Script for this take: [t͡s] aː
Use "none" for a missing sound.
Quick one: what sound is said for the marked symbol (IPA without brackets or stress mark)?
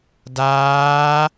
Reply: d